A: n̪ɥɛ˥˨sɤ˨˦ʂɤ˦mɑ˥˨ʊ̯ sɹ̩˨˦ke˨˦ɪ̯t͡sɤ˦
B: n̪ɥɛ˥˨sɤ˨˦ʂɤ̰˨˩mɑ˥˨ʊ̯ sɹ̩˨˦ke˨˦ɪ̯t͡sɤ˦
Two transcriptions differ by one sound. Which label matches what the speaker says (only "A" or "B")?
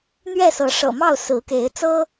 B